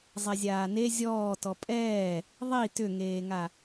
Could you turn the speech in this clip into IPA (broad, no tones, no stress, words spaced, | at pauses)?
zˤɛzʲaːne zʲɔː tɔpʼɛː | ðˤi tʏŋeːŋa